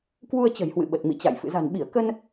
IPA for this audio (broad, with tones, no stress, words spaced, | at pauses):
kwu˧ə̯t͡ɕə̤˨˩jhwɨ̰˧˨ɓə˨˩t̚ mḭ˧˨t͡ɕa̰˧˨j fɨ̰˧˨za̤˨˩nɓi˧˩ə̯ kə˧n